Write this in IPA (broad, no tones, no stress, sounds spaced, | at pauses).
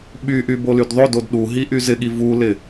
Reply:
ɓ y ʔ y b o l y d ðˤ o d o d ɗ u ɦ i ʔ y z ɪ ɠ i v u l ɪ